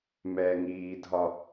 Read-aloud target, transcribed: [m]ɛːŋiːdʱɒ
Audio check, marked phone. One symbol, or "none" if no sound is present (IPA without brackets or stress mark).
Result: m